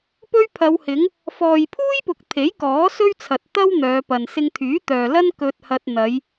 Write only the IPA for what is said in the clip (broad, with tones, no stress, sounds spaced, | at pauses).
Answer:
p ɵ˥ ɥ pʰ ɐ˨˧ w h ɪ˨˥ ŋ | f ɔː˨ j pʰ uː˥ j p ʊ˨ k̚ t̪ʰ e˨˥ j k ɔː˨˥ s ɵ˥ ɥ t͡sʰ ɐ˨ t̚ t̪ ɐ˥ w n̪ œː˨˧ p ɐ˨ n s ɪ˧ ŋ t̪ʰ yː˨˥ t̪ œː˨ l ɐ˥ n k ɵ˧ t̚ h ɐ˧ t̚ n̪ ɐ˨˧ j